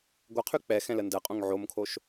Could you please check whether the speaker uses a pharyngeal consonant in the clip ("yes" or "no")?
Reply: yes